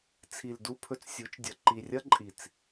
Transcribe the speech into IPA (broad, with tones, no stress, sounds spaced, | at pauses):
t͡sʰ i˨ l d u˧ pʰ ɵ˧ t͡s sʲ u˨˦ t͡ʃ dʲ ɐ˨ ǃ i˨ rʲ ɐ˦ ǃʼ i˨ t͡s